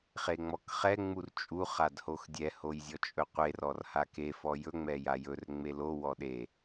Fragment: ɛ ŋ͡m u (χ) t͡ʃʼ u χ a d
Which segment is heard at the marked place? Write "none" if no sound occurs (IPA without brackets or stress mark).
r